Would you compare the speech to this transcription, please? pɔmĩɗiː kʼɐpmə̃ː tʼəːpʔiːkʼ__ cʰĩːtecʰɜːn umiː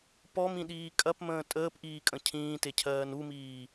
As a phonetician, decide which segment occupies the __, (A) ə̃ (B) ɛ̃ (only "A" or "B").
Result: A